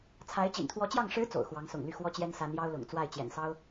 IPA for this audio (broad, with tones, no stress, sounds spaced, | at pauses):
t͡sʰ a˧˥ ɪ̯ t͡ɕ ḭ˨˩ n t̪ʰ w ɔ˧˥ t͡ɕ j ɑ˥˩ ŋ ʂ ɻ̩˧˥ t͡s o̰˨˩ ʊ̯ x w ɑ˧˥ ŋ s ʊ̰˨˩ ŋ l y˥˩ x w ɔ˥ t͡ɕ j ɛ˥ n s a˧˥ n j ɑ˥ ʊ̯ l ʊ̰˨˩ ŋ t͡s w a˥˩ ɪ̯ t͡ɕ j ɛ̰˨˩ n s ɑ˥ ʊ̯